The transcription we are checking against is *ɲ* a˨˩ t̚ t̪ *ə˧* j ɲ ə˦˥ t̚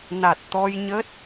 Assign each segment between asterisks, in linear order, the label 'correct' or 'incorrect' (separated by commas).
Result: incorrect, incorrect